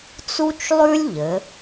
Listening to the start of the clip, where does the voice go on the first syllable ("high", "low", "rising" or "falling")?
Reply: high